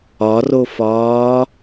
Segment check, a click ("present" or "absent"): absent